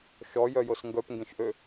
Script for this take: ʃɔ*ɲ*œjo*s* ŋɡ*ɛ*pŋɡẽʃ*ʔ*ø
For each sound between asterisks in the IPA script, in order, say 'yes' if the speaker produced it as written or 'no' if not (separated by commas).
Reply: no, yes, no, yes